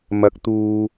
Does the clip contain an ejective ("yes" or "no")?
no